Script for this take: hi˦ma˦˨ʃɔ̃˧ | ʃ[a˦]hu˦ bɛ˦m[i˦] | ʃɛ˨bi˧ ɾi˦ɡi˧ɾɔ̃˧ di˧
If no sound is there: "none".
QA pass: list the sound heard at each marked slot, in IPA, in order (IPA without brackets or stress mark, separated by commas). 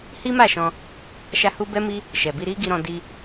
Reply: a˦, i˦